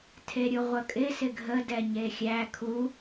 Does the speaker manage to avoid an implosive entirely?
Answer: yes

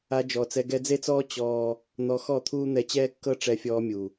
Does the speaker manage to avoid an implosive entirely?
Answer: yes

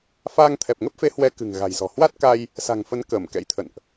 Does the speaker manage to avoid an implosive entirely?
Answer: yes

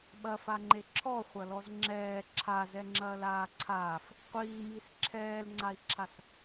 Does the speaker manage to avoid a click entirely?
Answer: no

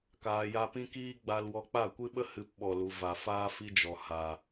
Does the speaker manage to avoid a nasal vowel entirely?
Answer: no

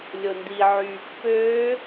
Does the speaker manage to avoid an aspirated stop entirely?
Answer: yes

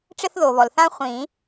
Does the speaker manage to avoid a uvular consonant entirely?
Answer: no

